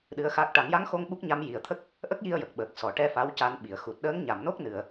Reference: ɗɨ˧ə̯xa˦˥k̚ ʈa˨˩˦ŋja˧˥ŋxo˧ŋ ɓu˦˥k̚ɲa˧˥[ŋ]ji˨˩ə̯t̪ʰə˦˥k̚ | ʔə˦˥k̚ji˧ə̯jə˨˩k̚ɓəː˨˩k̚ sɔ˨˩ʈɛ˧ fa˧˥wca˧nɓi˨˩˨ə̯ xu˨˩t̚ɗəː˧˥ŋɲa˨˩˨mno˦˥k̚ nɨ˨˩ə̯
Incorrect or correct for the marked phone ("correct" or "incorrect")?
incorrect